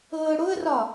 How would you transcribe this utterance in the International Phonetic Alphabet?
ɤːɽoə̯rɒ

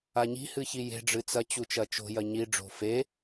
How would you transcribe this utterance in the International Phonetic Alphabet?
aɲi̤ hɨçije̤ ɖ͡ʐɨt͡sɐ t͡ɕut͡ʃɐt͡ʃo̤ jɐɲi ɖ͡ʐo̤fe

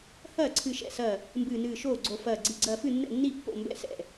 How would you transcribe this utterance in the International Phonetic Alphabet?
hɐː˥˩ ǀʰɨ˧˩ʃɛ̰˥˩sɐ˧˩ | mbɨː˧˩nɨː˧˩ʃoː˥˩ɡ͡ǀo˧˩ fɐː˧˩ɡ͡ǀi˧˩ ɡ͡ǀɐː˧˩fɨ˥˩nːɛ̰˥˩nːi˥˩ pːo̰˥˩mbɛ̰˥˩sɛ̰˥˩

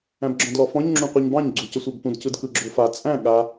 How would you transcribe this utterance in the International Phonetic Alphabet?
æ̃bɡ͡ǁɔ̃dlɔfɔ̃ɲ ŋ͡ǁũqʷɯɲbɑ̃ɲ ɡ͡ǀucəsʷabpũd cɯdkɯɡ͡ǁofa t͡sʼæ̃ ɠa

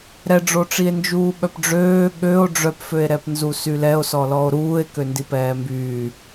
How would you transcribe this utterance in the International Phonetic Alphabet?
ɾɛɖ͡ʐoʈ͡ʂie̯ nd͡ʒuːɓœpɖ͡ʐøː ɠøo̯ ɖ͡ʐœpføe̯ ɾɛpnzusylɛo̯ sɔlɔo̯ɾuːe̯ køndipɛːmbyː

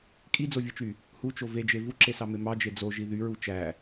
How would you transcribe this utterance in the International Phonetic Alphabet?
kʼid͡zovʲɯt͡ʃy | hut͡ʃo ved͡ʒe vuǁesɑme mɑd͡ʒe d͡zoʒi ðyɹu t͡ʃæ

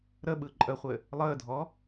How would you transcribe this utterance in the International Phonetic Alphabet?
ɾəɓɯ ǃʼəχʷɘ | lˠəːdʱɔ

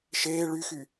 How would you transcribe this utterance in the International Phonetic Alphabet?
ʃeː ɭyxy

